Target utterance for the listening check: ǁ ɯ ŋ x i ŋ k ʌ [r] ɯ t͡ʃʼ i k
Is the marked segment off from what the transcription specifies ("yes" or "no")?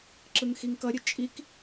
yes